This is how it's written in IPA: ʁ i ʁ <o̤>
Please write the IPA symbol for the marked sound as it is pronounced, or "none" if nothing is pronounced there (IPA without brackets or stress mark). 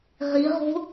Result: o̤